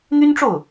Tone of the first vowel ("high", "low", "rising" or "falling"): high